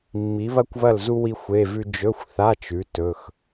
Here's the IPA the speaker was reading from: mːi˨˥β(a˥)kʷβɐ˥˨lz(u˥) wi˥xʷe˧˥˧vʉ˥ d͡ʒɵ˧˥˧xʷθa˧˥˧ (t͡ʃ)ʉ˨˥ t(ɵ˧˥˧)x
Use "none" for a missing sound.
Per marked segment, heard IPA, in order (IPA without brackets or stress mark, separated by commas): ɐ˥, u˥, t͡ʃ, ɵ˧˥˧